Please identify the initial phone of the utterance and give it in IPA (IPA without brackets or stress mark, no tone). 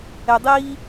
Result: ɛ